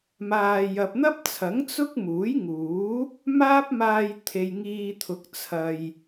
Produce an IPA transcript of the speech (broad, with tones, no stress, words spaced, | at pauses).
maː˨ jɐ˨p̚n̪ɐ˥p̚t͡sʰɐ˨˥ŋ t͡sʊ˥k̚muː˨˥j ŋuː˨˥ | maː˥p̚maː˧jt̪ʰe˨j ŋiː˨ t̪ʰʊ˨˥k̚ t͡sʰɐ˨j